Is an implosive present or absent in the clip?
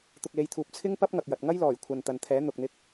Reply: absent